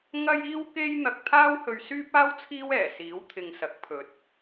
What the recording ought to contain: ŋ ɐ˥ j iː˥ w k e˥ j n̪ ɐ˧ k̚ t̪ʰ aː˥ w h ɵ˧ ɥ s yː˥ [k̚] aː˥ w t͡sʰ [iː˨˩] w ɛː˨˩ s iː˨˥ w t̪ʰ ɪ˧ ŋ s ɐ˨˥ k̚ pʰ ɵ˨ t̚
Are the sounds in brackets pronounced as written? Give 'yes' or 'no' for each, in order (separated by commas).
no, no